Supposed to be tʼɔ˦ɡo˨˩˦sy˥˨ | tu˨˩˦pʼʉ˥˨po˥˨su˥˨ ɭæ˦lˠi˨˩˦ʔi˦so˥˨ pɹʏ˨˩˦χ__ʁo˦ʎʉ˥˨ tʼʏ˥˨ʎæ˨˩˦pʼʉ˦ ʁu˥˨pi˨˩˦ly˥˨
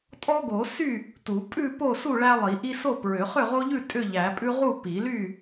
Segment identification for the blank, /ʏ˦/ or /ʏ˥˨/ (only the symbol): ʏ˥˨